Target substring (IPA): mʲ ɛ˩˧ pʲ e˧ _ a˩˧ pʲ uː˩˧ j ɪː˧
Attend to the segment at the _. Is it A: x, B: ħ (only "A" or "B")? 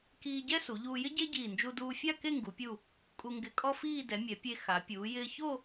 A